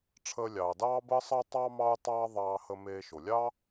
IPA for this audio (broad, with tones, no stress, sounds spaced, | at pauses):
ʈ͡ʂʰ əː˧ lʲ ɑː˩ d ɑː˥ b əː˥ sˤ ə˥ u̯ tˤ ɑ˥ m ɑ˥ u̯ tˤ ɑː˥ ðˤ ɑː˧ h ə˧ m eː˧ ʃ o˩ lʲ ɑ˥